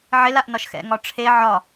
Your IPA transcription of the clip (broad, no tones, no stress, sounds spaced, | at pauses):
ʕ ɪ l a ʔ n ɒ ʃ x ɛ̰ ŋ ɒ ʈ͡ʂʰ e ʕ ɒ